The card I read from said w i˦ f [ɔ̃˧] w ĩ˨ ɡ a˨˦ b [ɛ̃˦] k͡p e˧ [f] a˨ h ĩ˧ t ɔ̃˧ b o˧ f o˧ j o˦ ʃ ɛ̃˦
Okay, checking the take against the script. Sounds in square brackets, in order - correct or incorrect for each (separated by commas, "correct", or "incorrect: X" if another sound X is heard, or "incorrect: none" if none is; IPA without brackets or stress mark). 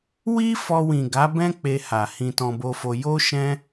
incorrect: ɔ˧, correct, incorrect: h